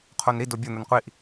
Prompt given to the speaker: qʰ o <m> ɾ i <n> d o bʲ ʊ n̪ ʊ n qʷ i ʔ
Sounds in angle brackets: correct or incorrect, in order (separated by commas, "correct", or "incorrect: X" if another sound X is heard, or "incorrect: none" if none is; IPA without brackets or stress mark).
incorrect: n, incorrect: none